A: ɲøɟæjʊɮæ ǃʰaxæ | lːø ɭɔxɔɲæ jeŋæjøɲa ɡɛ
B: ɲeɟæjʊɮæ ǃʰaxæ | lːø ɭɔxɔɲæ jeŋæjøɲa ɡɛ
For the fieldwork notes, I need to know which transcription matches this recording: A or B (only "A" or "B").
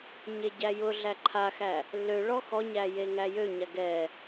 B